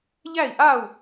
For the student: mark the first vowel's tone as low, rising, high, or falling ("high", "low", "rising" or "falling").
falling